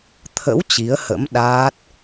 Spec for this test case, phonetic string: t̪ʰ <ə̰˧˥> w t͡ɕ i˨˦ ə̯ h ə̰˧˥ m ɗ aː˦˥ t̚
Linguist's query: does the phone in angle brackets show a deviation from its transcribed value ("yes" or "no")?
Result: no